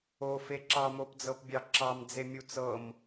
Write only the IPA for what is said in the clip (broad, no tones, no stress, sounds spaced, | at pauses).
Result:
o f e ǁ ɑ m o p d͡z ɤ p bʲ ɑ ǁ ɑ m d͡z e mʲ u t͡s ɤ m